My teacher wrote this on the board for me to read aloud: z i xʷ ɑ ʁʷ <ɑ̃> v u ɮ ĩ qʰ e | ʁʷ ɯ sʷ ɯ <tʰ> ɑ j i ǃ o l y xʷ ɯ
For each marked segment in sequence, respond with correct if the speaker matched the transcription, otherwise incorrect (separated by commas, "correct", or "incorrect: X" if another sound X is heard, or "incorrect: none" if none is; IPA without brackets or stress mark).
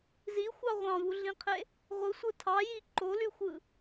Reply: correct, correct